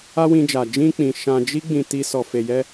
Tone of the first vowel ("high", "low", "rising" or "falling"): high